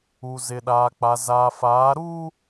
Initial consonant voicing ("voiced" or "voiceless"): voiced